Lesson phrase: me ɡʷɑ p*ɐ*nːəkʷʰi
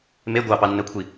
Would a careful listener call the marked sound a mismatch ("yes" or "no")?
yes